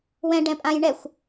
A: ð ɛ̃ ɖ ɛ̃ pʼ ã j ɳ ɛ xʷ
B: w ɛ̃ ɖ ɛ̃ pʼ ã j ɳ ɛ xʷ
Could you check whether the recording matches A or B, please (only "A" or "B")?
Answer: B